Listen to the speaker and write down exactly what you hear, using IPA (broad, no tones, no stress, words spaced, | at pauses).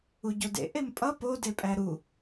uɟodḛ ʔempʼʌ po depʼæɾu